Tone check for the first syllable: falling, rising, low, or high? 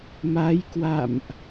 rising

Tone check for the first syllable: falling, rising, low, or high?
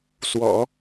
low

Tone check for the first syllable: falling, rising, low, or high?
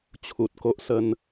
low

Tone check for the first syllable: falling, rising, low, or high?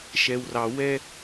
low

